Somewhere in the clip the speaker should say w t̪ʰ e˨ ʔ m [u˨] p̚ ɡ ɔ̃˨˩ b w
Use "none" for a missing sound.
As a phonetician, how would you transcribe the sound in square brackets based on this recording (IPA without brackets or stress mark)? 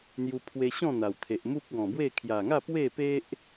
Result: u˦